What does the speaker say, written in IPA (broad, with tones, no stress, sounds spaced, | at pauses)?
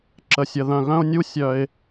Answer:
ǁ ə˨ sʲ ə˨ ð œ̃˨ ɣ œ̃˦ ʊ̯ nʲ u˦ sʲ œ˦ ɪ̯